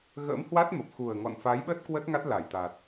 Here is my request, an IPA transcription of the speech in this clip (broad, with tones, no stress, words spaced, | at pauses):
ɣə̰ː˧˥mhwa˦˥t̚ mə˨˩p̚xu˨˩ə̯ŋɔ̰˧˨n fa˨˦jɓə˦˥t̚ kwə˦˥t̚ŋa˦˥t̚la˧˩jt̪a˨˩t̚